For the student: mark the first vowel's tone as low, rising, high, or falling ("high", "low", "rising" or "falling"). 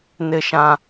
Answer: high